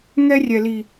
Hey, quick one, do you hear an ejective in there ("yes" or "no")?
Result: no